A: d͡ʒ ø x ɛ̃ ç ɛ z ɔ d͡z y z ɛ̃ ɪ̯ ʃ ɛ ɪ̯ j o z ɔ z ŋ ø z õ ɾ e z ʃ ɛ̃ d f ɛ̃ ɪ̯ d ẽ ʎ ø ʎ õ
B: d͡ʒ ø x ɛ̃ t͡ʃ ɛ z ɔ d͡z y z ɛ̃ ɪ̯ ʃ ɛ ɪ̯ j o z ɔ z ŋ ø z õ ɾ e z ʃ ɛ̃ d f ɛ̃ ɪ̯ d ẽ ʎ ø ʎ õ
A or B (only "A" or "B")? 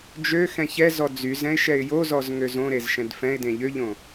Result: A